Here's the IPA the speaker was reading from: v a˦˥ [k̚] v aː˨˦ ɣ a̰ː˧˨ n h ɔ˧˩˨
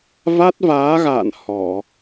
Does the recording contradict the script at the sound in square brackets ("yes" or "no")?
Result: yes